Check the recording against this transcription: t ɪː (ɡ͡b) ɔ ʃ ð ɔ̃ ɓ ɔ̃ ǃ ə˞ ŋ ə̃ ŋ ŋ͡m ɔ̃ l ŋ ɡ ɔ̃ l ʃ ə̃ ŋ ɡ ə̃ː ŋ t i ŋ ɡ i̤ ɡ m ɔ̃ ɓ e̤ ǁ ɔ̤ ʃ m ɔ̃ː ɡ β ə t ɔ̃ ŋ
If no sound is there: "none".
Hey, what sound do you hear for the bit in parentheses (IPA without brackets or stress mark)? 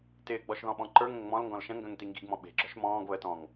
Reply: ɡ͡b